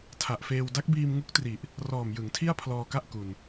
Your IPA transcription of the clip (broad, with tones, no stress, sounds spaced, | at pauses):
tʰ a˨˩ ʔ f eː˧ w d a˦˥ k̚ b iː˧ m ŋ u˦˥ k̚ t r i˨˩ ʔ | r ɔː˨˩ m j ɯ˩˦ ŋ tʰ i˥˩ a̯ pʰ l ɔː˧ k a˥˩ ʔ k u˧ n